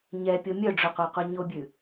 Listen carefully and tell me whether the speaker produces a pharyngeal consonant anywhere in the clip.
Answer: no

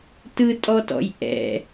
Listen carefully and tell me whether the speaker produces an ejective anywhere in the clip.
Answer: yes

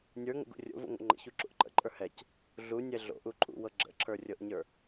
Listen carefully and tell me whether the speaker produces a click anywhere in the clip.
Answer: yes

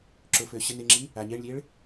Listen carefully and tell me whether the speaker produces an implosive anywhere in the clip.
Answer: no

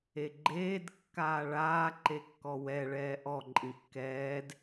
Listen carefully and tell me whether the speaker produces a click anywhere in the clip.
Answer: yes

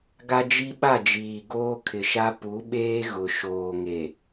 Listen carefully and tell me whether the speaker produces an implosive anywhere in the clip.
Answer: yes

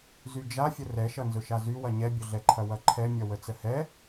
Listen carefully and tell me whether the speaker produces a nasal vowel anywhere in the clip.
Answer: no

